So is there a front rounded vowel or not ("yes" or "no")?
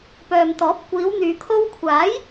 yes